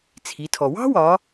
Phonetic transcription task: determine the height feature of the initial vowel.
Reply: high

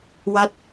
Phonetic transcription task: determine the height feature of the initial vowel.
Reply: low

